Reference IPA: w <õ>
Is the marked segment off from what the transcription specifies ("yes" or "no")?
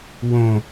no